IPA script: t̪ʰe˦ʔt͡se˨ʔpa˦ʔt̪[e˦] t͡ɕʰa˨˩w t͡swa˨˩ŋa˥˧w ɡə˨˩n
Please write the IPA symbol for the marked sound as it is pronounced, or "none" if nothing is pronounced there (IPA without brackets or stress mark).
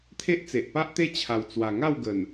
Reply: e˦